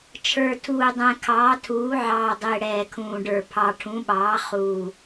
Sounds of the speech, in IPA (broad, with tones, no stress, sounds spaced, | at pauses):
t͡ʃʰ ə˞˨˩ tʰ uː˨˩ dˤ ɛ̃˨˩ kʰ ɑː˩˥ tʰ uː˩˥ ʕ ɑː˨˩ dˤ ɪː˨˩ ɽ ɛː˨˩ kʰ ũː˨˩ ɖ ə˞˨˩ pʰ ɑ˨˩ ʈʰ ũ˩˥ ɓ ɑː˩˥ χ uː˨˩